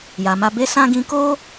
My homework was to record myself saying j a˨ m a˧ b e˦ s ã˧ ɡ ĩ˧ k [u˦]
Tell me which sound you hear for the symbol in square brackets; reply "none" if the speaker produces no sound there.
o˦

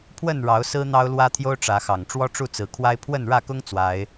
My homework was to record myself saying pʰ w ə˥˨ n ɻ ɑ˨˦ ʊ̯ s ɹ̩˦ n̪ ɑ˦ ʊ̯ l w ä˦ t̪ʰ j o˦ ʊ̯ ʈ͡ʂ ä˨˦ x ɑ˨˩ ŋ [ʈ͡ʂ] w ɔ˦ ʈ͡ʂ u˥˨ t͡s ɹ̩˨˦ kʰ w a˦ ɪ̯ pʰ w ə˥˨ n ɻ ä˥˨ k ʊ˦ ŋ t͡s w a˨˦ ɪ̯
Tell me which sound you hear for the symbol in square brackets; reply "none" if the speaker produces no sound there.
ʈ͡ʂ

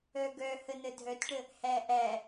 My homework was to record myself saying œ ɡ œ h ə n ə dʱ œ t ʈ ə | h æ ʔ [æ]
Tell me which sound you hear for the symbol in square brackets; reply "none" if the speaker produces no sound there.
æ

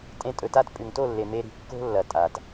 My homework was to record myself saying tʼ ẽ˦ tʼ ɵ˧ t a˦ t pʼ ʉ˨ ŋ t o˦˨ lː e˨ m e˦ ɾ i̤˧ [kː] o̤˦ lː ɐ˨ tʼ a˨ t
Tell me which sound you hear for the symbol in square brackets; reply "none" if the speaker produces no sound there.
kː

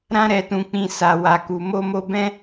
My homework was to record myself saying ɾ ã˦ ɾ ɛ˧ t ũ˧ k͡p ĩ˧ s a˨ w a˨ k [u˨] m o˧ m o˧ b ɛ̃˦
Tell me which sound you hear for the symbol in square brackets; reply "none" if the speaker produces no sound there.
u˨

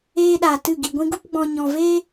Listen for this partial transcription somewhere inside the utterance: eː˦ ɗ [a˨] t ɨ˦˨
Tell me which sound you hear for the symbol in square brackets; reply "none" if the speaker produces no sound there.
a˨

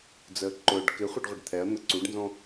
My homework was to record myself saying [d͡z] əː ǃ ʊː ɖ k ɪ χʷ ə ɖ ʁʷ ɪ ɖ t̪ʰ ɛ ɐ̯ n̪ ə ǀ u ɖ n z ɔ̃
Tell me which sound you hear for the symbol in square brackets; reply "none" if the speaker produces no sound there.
d͡z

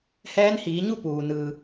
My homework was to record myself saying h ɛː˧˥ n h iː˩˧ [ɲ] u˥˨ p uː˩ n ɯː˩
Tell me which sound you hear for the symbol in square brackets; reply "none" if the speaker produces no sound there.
ɲ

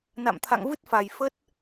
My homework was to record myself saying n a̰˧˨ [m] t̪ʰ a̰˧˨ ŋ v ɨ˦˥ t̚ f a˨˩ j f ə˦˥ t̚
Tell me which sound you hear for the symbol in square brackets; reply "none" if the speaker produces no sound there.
m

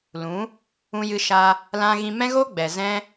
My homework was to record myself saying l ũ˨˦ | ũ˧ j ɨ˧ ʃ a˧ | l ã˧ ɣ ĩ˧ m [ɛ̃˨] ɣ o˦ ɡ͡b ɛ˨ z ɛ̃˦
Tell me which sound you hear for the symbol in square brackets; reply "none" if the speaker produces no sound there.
ɛ̃˦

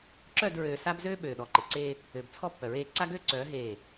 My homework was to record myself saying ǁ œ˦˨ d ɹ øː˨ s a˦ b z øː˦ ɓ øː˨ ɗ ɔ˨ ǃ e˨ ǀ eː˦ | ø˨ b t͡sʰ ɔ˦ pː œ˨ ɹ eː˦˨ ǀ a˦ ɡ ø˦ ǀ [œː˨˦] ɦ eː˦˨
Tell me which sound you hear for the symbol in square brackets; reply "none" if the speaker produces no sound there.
œː˨˦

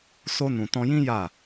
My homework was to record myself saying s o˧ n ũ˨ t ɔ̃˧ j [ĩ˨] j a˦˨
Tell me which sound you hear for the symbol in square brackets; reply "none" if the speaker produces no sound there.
ĩ˦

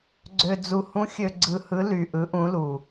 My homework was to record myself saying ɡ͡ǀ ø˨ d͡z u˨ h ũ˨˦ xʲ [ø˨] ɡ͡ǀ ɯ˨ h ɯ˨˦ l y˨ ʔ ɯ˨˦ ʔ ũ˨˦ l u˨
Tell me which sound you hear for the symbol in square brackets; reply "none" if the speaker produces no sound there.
ø˨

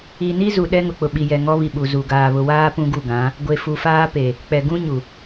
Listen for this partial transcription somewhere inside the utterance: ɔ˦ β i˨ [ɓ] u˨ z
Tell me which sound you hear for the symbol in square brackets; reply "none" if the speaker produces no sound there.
ɓ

